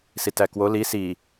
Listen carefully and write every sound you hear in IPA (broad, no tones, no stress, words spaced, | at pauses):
sitækwo li si